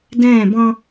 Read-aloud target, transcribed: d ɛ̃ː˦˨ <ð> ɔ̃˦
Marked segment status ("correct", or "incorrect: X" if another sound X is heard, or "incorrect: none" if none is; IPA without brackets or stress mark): incorrect: b